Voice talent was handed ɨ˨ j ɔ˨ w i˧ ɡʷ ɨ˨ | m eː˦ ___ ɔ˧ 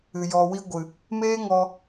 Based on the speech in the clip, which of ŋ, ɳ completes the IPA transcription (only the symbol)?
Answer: ŋ